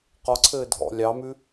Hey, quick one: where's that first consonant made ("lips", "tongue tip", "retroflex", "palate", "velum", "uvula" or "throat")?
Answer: uvula